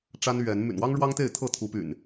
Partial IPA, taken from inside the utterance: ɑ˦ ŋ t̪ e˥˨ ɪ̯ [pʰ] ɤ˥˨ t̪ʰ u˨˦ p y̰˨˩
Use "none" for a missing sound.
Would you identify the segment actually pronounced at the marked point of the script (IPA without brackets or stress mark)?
t̪ʰ